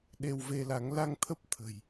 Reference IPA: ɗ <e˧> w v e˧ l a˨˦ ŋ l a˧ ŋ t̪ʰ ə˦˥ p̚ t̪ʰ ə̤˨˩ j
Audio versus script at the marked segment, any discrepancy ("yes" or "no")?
no